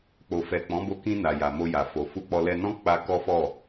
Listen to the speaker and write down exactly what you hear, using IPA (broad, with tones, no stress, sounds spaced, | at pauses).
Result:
k͡p o˨ f ɛ˨ k͡p ɔ̃˨˦ b o˧ k ĩ˧ n a˨ j a˨ m o˧ j a˨ f o˨ f u˧ k͡p ɔ˧ l ɛ˧ n ɔ̃˦ k͡p a˧ k ɔ˦ f ɔ˦˨